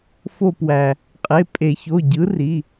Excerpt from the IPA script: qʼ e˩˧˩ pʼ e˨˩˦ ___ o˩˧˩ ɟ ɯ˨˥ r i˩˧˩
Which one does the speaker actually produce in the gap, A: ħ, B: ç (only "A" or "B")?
B